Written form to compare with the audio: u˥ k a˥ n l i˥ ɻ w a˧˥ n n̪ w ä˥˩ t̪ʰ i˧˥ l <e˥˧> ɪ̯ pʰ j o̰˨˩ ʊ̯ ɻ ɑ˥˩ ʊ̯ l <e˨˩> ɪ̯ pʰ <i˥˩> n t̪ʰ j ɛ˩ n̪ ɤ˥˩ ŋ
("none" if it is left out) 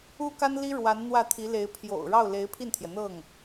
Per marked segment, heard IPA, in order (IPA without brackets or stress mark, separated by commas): e˧˥, e˧˥, i˥˩